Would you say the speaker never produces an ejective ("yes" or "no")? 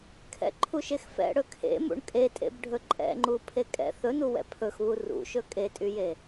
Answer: no